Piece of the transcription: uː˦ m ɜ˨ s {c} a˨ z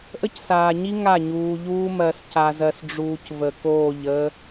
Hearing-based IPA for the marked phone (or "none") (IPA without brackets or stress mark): c